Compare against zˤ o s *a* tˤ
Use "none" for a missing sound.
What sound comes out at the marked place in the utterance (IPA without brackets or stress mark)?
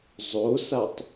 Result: a